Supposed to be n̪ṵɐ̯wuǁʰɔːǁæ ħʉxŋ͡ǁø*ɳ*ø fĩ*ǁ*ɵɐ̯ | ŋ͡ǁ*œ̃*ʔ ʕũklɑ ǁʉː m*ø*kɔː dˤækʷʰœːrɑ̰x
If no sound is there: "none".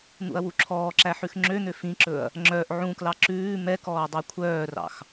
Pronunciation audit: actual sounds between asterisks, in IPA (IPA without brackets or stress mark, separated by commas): n̪, ǁ, œ, ɛ